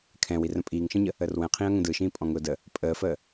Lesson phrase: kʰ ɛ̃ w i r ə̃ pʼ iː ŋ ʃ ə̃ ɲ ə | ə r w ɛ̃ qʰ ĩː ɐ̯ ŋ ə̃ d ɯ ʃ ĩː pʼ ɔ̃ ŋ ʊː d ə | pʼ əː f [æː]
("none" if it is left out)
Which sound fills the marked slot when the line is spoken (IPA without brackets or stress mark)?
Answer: əː